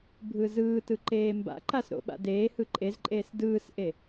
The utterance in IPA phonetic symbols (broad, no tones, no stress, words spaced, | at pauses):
bʱɯːzɯːtɯ ǃeːmba̰ǃas ɾo̰ɓa̰deːhɯ ǃʼezǃʼeːs dɯːsʔe